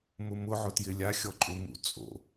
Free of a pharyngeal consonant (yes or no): no